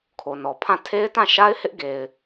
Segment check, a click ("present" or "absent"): absent